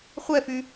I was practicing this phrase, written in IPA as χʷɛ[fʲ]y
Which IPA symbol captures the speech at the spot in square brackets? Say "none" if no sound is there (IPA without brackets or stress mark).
f